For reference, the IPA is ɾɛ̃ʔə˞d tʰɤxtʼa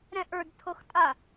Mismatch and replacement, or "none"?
none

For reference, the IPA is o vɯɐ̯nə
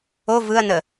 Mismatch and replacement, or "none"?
none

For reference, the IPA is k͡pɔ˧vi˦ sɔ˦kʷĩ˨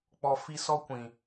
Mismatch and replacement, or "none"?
v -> f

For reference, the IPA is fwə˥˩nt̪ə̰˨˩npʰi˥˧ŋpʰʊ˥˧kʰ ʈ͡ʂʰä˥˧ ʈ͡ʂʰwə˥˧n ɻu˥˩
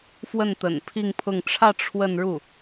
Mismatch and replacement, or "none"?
kʰ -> ŋ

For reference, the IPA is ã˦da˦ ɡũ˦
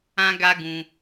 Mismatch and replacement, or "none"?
d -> ɡ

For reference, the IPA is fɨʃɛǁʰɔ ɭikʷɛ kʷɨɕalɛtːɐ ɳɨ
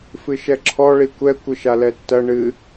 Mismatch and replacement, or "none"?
ɕ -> ʃ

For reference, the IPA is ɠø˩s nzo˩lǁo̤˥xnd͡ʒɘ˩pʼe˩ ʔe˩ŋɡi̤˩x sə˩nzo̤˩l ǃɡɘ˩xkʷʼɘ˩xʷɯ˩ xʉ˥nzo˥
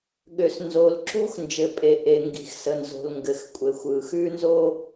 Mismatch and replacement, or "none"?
ǃ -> ŋ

